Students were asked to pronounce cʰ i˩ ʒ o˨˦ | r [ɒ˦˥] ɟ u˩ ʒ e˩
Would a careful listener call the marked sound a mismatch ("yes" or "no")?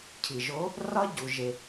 no